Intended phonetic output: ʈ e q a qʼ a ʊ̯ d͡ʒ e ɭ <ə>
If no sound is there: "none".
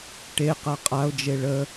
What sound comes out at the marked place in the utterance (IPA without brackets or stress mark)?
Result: ə